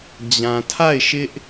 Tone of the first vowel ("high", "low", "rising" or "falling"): low